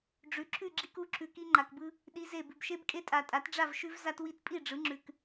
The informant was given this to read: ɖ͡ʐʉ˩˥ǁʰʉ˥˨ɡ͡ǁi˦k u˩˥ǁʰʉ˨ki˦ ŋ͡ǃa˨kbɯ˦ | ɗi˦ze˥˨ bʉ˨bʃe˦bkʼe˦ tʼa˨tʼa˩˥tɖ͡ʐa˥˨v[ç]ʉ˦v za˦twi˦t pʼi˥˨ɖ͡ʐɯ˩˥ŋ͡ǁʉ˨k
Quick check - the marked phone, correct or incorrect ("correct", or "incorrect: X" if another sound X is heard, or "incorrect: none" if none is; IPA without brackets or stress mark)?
incorrect: ʃ